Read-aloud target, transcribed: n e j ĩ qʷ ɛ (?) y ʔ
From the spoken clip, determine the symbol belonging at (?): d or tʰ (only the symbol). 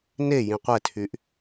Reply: tʰ